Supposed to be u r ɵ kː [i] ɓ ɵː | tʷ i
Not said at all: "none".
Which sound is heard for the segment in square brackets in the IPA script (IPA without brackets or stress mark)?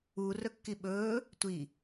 i